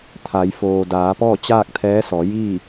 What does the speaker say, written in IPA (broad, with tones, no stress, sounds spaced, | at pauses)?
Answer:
t̪ʰ a˩˧ j f oː˩ d aː˩˧ p ɔː˥˨ t͡ɕ aː˥˨ k̚ t̪ʰ ɛː˧˥ s ɔː˩˧ j iː˥˨